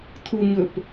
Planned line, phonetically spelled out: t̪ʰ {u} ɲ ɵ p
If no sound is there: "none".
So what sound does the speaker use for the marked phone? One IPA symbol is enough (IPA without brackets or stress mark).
u